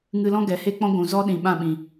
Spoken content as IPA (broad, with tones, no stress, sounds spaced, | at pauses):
ŋ ɨ˧ l ɔ̃˦ ɡ ɛ˨ h e˦ k͡p ɔ̃˦ ɡʷ ũ˨ z ɔ˦ ɗ ĩ˨ ɓ ã˦˨ ɓ ĩ˨